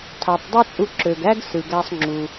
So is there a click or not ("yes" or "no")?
yes